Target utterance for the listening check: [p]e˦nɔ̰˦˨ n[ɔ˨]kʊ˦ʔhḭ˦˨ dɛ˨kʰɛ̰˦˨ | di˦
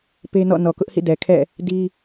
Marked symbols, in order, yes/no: yes, yes

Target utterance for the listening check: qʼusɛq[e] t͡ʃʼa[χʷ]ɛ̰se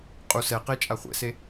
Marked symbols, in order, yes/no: yes, yes

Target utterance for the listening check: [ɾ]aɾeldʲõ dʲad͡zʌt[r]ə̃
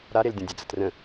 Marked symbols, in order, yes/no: yes, yes

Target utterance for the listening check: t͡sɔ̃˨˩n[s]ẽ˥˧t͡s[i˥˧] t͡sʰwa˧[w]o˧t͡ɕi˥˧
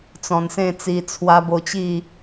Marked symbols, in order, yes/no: yes, no, no

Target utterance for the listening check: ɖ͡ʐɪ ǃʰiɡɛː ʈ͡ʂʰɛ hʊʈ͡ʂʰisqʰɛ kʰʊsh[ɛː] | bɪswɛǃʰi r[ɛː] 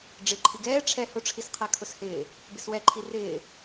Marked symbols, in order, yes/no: no, no

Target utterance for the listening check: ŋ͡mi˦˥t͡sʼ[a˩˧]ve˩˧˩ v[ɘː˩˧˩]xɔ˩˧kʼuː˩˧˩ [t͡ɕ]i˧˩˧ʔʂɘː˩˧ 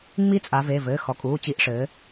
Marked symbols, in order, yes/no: yes, yes, yes

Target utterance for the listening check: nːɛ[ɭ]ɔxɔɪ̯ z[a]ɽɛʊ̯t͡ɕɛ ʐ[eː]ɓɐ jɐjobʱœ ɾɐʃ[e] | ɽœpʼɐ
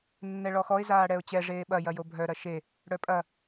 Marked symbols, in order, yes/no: yes, no, yes, yes

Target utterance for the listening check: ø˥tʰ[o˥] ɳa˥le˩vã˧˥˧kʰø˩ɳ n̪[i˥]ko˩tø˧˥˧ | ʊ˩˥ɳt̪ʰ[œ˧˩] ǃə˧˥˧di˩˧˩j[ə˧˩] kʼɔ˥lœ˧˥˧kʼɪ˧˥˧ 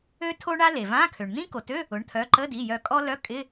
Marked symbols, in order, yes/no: yes, no, no, no

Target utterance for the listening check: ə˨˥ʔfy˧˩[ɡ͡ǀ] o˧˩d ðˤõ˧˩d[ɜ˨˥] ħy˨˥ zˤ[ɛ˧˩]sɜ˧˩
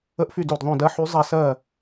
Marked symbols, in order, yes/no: no, yes, yes

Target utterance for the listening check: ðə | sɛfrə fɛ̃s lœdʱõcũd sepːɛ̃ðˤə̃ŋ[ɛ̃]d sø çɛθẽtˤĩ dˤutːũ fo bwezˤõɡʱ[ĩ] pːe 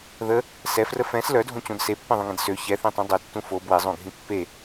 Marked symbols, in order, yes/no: yes, yes

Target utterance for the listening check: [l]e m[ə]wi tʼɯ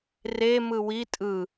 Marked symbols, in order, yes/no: no, no

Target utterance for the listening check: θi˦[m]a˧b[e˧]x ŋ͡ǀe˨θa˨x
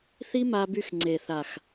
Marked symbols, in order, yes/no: yes, no

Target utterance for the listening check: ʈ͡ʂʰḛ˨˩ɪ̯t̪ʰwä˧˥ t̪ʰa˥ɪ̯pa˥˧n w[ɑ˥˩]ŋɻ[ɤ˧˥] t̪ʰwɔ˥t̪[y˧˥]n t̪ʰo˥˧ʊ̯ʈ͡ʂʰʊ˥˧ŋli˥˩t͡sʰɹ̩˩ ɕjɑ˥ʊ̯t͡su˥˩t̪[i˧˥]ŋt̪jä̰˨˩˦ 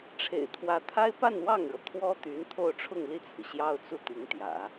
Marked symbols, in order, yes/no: yes, no, yes, yes

